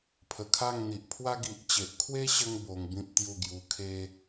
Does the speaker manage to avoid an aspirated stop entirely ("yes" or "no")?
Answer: no